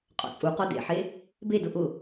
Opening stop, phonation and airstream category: ejective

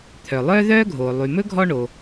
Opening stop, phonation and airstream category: aspirated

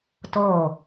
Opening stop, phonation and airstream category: plain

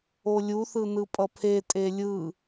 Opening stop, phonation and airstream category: ejective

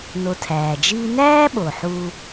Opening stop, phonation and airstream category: aspirated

